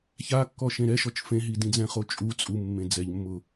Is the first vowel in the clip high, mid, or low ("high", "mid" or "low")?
low